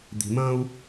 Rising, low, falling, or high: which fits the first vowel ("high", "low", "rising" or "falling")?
low